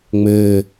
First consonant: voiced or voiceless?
voiced